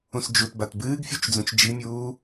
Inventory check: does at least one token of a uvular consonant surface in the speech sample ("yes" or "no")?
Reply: no